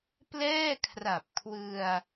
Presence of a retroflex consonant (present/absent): absent